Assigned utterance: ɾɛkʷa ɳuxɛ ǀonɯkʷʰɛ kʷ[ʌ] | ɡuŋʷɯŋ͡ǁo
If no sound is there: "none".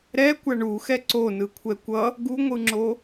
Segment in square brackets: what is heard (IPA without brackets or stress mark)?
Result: ʌ